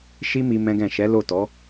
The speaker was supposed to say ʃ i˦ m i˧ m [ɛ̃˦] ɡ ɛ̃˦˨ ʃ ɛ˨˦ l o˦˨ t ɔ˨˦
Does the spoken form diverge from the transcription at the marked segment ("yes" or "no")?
no